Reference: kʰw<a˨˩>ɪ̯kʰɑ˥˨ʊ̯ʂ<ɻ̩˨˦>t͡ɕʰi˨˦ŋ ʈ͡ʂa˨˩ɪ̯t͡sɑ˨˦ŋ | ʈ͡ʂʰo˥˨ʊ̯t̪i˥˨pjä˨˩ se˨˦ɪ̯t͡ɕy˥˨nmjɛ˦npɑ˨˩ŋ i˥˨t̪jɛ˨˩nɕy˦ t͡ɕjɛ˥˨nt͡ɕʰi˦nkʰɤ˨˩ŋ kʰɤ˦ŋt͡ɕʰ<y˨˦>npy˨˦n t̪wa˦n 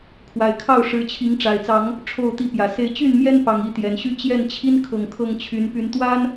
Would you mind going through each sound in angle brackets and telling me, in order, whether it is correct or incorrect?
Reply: correct, correct, correct

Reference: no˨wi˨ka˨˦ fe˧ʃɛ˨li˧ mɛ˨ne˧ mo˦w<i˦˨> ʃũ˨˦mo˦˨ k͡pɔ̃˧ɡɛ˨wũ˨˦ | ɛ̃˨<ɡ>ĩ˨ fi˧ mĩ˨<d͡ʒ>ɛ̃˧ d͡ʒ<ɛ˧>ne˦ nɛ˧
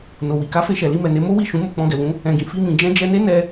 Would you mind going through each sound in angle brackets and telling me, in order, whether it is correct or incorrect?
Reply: correct, correct, correct, correct

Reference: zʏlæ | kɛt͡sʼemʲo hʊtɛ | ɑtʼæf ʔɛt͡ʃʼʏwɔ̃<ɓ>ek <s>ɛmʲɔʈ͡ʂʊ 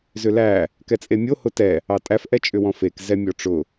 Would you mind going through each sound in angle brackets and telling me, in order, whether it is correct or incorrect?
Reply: incorrect, incorrect

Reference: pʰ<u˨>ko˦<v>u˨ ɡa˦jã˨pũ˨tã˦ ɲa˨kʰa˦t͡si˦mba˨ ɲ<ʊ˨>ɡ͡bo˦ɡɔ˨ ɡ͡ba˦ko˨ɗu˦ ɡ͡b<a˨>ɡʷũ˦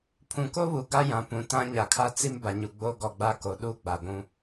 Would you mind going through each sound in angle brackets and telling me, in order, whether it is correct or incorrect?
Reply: incorrect, incorrect, incorrect, correct

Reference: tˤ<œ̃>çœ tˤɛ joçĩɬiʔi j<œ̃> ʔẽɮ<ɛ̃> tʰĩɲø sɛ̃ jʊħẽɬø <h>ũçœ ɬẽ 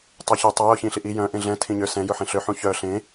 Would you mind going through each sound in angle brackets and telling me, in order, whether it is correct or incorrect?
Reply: incorrect, correct, correct, incorrect

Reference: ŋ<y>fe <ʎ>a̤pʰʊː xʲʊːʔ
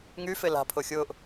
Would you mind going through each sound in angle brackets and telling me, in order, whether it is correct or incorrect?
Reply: correct, incorrect

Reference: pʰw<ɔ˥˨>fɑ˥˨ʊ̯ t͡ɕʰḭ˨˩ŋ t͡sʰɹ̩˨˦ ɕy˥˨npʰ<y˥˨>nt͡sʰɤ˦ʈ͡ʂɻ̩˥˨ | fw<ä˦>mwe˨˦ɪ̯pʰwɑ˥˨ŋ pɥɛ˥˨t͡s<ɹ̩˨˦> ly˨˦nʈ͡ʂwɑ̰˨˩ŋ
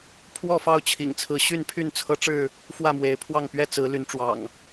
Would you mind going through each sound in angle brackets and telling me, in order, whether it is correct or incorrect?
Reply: correct, correct, incorrect, correct

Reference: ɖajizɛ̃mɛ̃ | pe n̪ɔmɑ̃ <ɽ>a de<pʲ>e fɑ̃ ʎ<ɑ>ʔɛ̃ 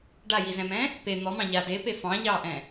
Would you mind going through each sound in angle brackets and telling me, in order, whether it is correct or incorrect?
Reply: incorrect, incorrect, correct

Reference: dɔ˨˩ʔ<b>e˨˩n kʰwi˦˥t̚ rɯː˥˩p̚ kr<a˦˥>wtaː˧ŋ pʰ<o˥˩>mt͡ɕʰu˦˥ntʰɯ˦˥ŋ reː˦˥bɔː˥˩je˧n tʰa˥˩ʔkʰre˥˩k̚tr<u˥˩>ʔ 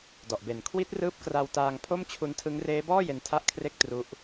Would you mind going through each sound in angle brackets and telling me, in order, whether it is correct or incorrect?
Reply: correct, incorrect, correct, incorrect

